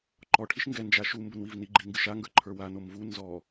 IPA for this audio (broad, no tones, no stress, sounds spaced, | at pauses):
ǃ ɔ ʈʰ i ʃ ŋ ɡ ɛ n d͡ʒ a ʃ u m b ʊ n w i v n i ɡ͡ǃ i ŋ ɡ ɨ ʃ a ŋ ɡ ə˞ ǃʰ ə˞ w a n o m v u n z ɔ